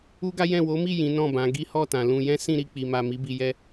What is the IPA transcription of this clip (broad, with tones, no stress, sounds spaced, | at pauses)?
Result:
u˦ ɡ a˦ j ɛ̃˦˨ w o˨˦ m i˦˨ j ĩ˨˦ n ɔ̃˦˨ b ã˨˦ ɡ i˦ h ɔ˦˨ t ã˨ l ũ˧ j ɛ̃˦ s ĩ˦˨ ɾ i˧ k͡p i˨ m a˨ m i˨˦ b i˧ j ɛ˦